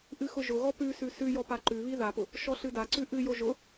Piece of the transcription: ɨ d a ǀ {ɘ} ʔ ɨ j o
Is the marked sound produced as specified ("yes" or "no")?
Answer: no